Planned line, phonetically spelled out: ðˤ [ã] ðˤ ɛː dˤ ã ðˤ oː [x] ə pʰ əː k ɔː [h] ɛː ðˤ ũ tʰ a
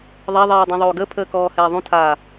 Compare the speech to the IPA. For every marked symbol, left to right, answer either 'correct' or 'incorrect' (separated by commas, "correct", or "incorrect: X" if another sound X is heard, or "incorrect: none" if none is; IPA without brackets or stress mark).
incorrect: a, incorrect: ɡ, correct